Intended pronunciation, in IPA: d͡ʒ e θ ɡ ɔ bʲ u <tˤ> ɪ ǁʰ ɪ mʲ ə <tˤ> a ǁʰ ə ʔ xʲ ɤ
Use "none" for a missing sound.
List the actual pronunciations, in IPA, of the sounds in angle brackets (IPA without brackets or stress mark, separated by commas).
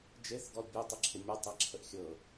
tˤ, tˤ